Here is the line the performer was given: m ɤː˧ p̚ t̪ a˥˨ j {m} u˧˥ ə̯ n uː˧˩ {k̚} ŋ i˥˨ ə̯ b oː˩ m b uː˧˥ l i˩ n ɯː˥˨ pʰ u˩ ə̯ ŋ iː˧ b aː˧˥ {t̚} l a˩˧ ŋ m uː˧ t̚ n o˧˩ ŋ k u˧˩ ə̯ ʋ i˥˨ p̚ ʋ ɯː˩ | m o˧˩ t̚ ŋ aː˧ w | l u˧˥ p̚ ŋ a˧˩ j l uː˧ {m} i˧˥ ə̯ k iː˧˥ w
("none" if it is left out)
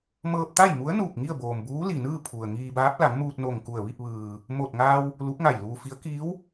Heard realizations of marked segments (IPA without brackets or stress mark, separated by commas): m, k̚, p̚, f